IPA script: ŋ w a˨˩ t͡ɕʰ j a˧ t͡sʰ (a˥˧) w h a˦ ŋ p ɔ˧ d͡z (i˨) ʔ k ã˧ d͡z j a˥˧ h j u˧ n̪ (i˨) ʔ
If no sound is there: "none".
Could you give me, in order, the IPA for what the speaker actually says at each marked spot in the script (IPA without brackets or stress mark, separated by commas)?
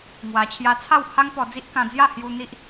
a˥˧, i˦, i˦